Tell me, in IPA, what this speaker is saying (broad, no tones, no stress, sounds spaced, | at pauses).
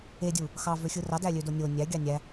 e dʲ u | x ɑ v ø xʲ ɯ r ɑ d æ lʲ ø d o nʲ o nʲ æ ɡʲ ɑ nʲ æ